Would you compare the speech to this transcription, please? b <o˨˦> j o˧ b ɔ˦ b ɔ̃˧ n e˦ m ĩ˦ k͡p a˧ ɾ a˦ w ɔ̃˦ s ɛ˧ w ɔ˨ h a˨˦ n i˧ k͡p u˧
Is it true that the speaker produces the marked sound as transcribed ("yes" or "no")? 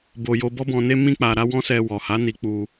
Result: no